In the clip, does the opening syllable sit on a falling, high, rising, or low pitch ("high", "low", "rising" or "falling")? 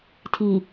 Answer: low